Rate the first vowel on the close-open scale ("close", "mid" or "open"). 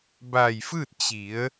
open